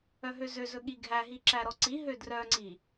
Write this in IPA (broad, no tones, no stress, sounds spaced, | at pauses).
œ ɦ ø z ø z ɵ ɠ i ɡʱ æ ɦ i ǁ æ ɾ ɔ ǀ i ɦ ø d r œ ŋ͡ǀ i